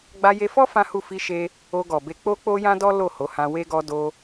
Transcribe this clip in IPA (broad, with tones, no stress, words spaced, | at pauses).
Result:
ɡ͡ba˧je˧fɔ˦ fã˦hu˦˨ fi˧ʃe˧ | o˧ɡɔ˨be˧ k͡po˦k͡po˦jã˦dɔ˦ lo˦˨ho˨˦hã˧ we˦ɡɔ˦ do˧